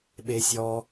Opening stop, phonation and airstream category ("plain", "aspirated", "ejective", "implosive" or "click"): implosive